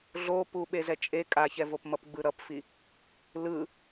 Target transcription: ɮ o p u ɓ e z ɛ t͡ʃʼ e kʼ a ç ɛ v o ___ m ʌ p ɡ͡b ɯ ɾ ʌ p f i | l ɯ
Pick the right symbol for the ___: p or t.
p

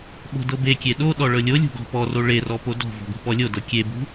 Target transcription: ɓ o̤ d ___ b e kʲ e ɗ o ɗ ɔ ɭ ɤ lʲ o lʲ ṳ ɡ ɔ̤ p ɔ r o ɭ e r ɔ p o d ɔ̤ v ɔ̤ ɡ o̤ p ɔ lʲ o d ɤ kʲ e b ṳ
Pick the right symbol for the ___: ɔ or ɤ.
ɤ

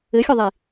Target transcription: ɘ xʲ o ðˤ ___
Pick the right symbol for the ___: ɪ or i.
i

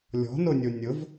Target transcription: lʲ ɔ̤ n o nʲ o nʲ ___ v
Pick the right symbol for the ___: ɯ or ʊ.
ʊ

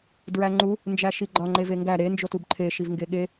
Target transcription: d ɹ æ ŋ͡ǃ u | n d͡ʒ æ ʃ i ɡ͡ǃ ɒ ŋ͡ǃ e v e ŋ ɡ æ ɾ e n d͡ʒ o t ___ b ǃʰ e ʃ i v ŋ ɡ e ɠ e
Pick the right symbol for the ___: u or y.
u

